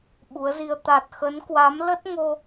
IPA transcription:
ɓ u˨˦ ə̯ z i˧ ə̯ t̪ a˨˩ t̚ x ə˨˦ n k w a˨˦ m l ə˦˥ t̚ ŋ o˧

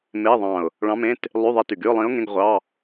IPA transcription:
m e˧˥˧ ðˤ ɑ̃˧˩ ʊ̯ | ɭ ɑ̃˧˥ m ẽ˧˥˧ t | lˠ y˧˥˧ ðˤ e˧˥ t y˩ ɡ y˧˥˧ ʊ̯ lˠ ĩ˧˥ ʊ̯ ŋ ẽ˧˥˧ ɡ ʁʷ ɑ˧˥˧

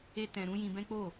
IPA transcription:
e˦ t ɛ̃˧ ɾ ũ˦ j ĩ˧ b ɛ̃˦ k͡p o˦˨

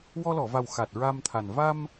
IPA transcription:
w ɔ˧ l ɔ˨˩˨ v a˨˩ w x a˨˩ t̚ ɹ a˧ m t̪ʰ a˨˩ n v a˧ m

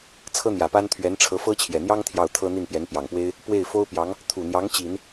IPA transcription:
t͡sʰ ɤ˥ n̪ j ä˨˩ p a˥ n t̪ʰ ɥ ɛ˧˥ n ʈ͡ʂʰ ɤ˧˥ f ɤ˥ t͡ɕʰ j ɛ˨˩ n̪ j ɑ˥ ŋ t̪ʰ j ɑ˥˩ ʊ̯ t̪ʰ ɤ˥ n̪ i˥˩ n p j ɛ˧˥ n p j ɑ˨˩ ŋ p w e˥ ɪ̯ | p w e˥˩ ɪ̯ f o˥ ʊ̯ p j ɑ˧˥ ŋ | t̪ʰ u˨˩ n̪ j ɑ˧˥ ŋ t͡ɕ i˨˩˦ n

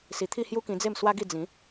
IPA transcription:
s i˨˩ t̪ʰ i˥˧ h j u˦ k ĩ˧ d͡z e˥˧ m s w a˦ ɡ i˥˧ d͡z ĩ˨˦

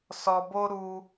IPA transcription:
s ɔ˧ b o˦ ɾ u˦

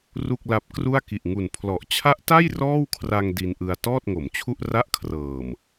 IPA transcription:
r u˥˩ k̚ l a˦˥ p̚ k r u˥˩ a̯ k i˨˩ ʔ ŋ u˨˩ n pʰ l ɔ˨˩ ʔ t͡ɕʰ a˦˥ ʔ t a˥˩ j r ɔː˥˩ w kʰ r a˧ ŋ d i˧ n ʔ ɯ˧ a̯ t ɔː˥˩ t̚ ŋ o˩˦ m t͡ɕʰ u˥˩ ʔ r a˥˩ ʔ kʰ r ɤː˨˩ m

